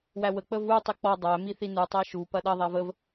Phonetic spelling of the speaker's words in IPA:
w æ w ə k͡p ə v u tˤ i k͡p ɔ dˤ æ m i θ i n u tˤ æ ʃ u p ɐ ɗ ɐ ðˤ æ v ə v

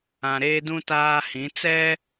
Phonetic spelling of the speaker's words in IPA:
ã˨ ɾ eː˦ d ũ˦ t aː˦ h ĩ˨˦ t͡s ɛ˦

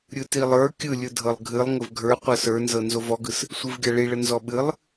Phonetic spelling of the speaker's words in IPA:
ɾʲ ɯ t i lˠ ə˞ kʲ ɯ lʲ ɯ dʱ ɤ lˠ ɡʱ ɨ lˠ ŋ ə v ɡʱ ə˞ qʷ ɤ s ə˞ n z ɤ n z o v ɔ ɡ ɯ s | sʷ ɨ v ɡʲ a ɭ i ɭ ə n z ɔ ɓ ɨ lˠ

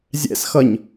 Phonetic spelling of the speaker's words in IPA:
zʲ ɛ̰ s x ʌ ɲ

